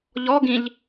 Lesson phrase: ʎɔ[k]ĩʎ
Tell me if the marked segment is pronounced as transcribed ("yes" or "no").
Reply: no